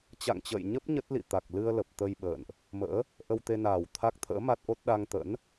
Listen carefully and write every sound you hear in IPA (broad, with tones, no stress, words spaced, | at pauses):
t͡ɕa̰˧˨ŋt͡ɕə̰ː˧˨jɲə˦˥p̚ ɲə˦˥t̚lḭ˧˨ t̪a˨˩k̚lɨ˧ə̯lə˨˩p̚ t̪ə˧j ɓə̰ː˧˨nʔ | mə̰ː˧˥ | ʔə˧wt̪e˧naː˨˩w t̪ʰa˦˥k̚t̪ʰə̰ː˧˥ ma˦˥t̚ʔo˦˥t̚ ɗa˧ŋt̪ə̰˧˥n